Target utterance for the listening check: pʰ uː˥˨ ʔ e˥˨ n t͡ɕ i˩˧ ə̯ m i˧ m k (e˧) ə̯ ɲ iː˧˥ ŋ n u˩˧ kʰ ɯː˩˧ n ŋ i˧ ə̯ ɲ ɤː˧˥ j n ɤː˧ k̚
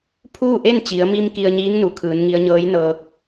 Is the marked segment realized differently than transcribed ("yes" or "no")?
yes